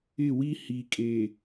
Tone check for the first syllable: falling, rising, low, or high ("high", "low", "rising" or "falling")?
falling